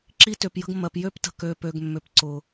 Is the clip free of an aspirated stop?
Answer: yes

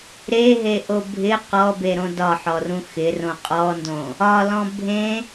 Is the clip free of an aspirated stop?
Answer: yes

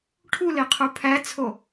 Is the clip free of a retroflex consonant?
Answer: no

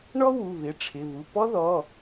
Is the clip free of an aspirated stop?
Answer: no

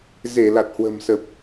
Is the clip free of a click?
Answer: yes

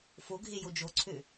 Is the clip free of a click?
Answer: no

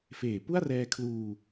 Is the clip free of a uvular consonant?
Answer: yes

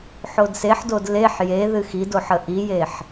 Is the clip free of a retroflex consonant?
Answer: yes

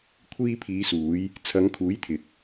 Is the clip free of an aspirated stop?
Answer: no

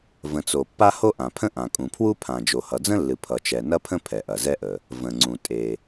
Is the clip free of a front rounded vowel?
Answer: yes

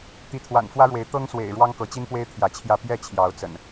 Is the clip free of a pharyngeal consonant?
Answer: yes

